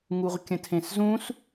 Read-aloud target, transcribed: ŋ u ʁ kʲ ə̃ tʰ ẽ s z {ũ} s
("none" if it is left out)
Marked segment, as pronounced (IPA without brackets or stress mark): ũ